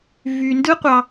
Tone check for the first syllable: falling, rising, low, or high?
low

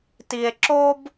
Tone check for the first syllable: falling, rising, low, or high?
low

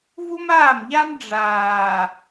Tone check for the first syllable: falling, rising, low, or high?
high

